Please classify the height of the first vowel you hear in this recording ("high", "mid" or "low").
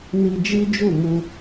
high